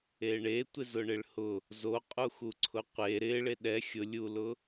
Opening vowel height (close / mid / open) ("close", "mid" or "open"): mid